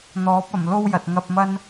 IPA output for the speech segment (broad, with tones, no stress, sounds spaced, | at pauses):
n̪ ɔː˨˥ p̚ ɐ˨˩ m l o˥ w j ɐ˨ t̚ ŋ ɐ˧ p̚ m ɐ˥ n